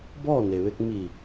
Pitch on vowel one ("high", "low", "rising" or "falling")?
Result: falling